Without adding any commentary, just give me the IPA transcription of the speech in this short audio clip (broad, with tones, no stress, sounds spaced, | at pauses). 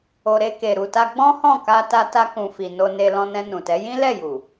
o˨ ɾ e˧ k e˨ ɾ u˨ t a˧ ɡ͡b ɔ̃˦ h ɔ̃˦˨ k a˧ t a˧ t a˧ k ũ˨ f i˨ n o˧ n e˧ l ɔ̃˧ n ɛ̃˧ n ũ˨ t ɛ˨˦ j ĩ˦ l ɛ˦˨ j u˨